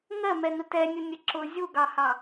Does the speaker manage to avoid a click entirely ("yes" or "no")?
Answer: no